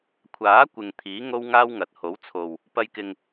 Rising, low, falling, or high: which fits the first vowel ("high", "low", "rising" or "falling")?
rising